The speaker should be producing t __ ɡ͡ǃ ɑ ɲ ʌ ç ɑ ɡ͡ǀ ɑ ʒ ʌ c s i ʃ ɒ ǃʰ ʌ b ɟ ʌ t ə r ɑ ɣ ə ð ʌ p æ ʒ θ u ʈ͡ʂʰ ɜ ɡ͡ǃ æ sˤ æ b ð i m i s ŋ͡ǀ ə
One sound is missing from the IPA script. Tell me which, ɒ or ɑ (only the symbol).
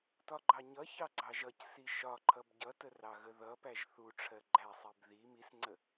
ɒ